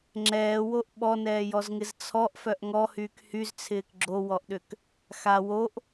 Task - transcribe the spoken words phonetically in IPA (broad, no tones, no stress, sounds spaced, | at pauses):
ŋ͡ǁ ɛː w o ʔ ɓ ɔ n ɛː j ɔ z ŋ ɪ z t͡sʰ ɔ ʔ f œ ʔ ŋ ɔ h yː k h y z t͡sʰ ɪː k ɡ͡ǁ o w ɔ ʔ ɗ ʏ k | x a w o ʔ